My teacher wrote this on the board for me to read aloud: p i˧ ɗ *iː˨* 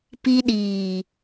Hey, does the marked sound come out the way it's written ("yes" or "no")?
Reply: yes